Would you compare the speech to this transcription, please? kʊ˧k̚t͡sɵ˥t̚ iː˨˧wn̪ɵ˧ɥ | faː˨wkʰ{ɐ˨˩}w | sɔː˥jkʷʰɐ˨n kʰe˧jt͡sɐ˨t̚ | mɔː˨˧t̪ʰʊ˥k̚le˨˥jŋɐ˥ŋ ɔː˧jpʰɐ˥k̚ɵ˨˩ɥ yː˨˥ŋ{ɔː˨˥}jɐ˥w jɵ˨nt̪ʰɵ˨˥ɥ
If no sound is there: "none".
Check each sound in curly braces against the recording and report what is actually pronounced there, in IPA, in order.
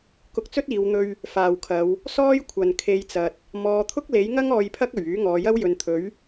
ɐ˨˧, ɔː˨˧

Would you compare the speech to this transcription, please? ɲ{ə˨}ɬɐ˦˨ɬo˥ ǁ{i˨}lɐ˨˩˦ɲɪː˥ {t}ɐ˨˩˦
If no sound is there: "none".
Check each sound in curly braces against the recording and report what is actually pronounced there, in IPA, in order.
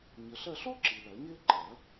ə˨, i˨, ǃ

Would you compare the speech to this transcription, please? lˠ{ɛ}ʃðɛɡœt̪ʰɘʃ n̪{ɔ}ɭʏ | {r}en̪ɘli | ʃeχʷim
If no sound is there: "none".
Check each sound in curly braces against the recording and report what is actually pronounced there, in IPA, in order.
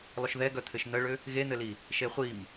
ʏ, ə, ɣ

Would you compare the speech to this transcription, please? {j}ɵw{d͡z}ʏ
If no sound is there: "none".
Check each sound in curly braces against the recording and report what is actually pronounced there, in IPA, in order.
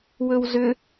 w, z

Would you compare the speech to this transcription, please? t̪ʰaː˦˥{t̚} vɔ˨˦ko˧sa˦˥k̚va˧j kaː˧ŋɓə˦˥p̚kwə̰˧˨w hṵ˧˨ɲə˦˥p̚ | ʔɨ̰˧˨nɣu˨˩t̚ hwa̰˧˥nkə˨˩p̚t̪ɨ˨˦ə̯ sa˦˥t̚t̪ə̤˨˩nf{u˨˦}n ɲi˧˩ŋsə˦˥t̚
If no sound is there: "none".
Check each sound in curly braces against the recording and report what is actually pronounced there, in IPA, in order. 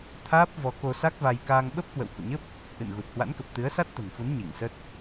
p̚, u˨˦

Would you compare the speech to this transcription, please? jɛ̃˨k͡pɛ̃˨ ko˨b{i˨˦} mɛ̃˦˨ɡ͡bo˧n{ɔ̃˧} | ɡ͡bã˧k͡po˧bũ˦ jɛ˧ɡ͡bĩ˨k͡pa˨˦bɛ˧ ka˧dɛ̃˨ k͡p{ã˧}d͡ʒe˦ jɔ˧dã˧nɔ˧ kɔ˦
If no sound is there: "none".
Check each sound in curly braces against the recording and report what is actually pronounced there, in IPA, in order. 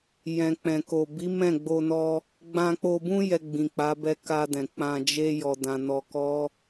i˨˦, ɔ˧, ã˧

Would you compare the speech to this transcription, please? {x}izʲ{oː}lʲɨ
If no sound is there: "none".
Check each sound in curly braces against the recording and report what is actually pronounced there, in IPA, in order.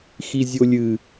x, o

